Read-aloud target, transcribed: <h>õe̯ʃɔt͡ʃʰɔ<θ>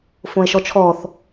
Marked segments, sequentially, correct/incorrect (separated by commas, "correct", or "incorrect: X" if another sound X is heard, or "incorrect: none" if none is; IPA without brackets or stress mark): incorrect: f, correct